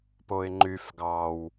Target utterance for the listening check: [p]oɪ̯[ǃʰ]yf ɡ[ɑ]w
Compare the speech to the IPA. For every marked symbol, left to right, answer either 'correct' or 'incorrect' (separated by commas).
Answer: correct, incorrect, correct